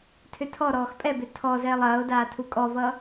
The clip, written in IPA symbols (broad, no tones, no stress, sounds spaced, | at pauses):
tʰ ʏ tʰ ɔ ɾ ɔː x pʼ ɛ b ʏ tʰ ɔ z ɛː lˠ ɐː o̯ d aː tʰ u kʼ ɔ v ʌ